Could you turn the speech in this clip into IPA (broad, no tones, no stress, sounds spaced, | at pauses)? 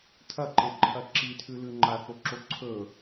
tʰ ɐ ǃ e ǃʰ ɐ ǁ i tʰ ʉ l ʉ ŋ͡ǃ a θ o ǁ o ǀʰ ɵ